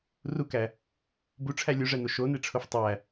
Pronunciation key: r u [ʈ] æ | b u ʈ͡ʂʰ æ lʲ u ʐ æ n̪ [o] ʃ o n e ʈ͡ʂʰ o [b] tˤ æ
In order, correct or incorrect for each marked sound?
incorrect: k, correct, incorrect: f

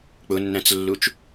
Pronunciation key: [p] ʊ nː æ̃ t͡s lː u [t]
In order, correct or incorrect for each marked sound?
incorrect: k͡p, incorrect: t͡ʃ

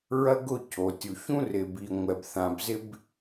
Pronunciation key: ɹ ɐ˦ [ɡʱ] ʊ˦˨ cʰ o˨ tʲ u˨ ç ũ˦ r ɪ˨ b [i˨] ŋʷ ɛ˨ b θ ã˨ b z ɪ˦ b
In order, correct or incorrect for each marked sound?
incorrect: ɡ, correct

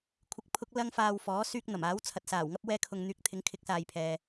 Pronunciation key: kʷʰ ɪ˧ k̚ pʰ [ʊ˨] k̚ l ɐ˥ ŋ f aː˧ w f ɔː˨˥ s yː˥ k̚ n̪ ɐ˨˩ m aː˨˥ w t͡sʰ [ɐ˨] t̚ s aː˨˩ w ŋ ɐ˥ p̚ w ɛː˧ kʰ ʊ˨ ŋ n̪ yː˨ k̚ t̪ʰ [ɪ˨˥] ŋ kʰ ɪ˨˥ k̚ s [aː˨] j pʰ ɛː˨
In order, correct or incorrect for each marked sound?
incorrect: ʊ˥, correct, correct, correct

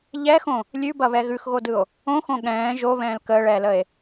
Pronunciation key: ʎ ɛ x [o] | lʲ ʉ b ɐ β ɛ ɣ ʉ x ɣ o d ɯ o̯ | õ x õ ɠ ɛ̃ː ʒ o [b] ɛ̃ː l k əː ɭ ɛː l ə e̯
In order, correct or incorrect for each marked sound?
incorrect: õ, incorrect: β

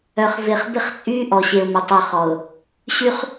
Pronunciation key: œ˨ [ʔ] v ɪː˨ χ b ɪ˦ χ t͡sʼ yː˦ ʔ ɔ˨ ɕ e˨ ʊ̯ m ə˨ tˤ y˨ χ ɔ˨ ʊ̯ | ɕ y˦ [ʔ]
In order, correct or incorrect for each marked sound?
incorrect: χ, incorrect: χ

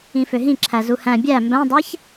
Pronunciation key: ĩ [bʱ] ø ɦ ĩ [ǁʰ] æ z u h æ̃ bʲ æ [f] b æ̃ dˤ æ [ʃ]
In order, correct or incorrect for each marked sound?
incorrect: f, correct, incorrect: m, incorrect: ç

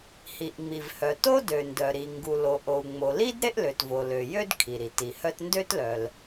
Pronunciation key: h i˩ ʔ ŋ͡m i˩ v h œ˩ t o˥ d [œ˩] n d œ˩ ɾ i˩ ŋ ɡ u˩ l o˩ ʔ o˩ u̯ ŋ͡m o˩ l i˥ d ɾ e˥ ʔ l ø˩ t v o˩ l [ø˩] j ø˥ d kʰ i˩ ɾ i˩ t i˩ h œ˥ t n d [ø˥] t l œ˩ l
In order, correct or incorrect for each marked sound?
incorrect: ø˩, correct, correct

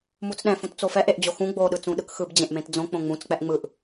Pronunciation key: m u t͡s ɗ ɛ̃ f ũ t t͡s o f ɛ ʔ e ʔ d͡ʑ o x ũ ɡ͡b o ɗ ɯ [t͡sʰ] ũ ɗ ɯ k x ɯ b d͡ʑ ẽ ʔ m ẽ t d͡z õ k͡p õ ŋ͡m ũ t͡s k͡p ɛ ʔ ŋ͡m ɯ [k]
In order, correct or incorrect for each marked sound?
incorrect: t͡s, incorrect: ʔ

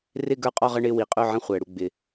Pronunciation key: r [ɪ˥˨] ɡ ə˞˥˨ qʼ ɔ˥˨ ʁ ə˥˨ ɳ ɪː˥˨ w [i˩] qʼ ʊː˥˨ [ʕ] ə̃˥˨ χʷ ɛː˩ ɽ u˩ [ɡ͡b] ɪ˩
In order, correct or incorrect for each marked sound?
correct, correct, correct, correct

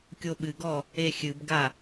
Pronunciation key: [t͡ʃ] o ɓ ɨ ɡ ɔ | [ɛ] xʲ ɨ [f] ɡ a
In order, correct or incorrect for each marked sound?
incorrect: kʲ, incorrect: e, incorrect: b

